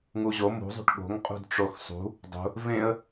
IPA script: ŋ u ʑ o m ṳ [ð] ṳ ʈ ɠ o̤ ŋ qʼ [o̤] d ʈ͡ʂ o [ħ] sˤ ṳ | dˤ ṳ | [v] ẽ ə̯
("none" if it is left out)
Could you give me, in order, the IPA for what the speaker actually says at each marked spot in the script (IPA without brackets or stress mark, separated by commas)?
zˤ, ṳ, x, v